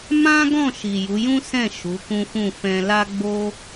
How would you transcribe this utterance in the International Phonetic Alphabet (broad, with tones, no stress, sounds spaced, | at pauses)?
m ã˦ ɡ ɔ̃˦˨ ʃ i˨ j u˨˦ j ũ˦ s ɛ̃˦˨ ʃ u˨˦ k ũ˦ f ũ˦˨ f ɛ̃˧ l a˦ ɡ͡b o˦